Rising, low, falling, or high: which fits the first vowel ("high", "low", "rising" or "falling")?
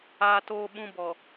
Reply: low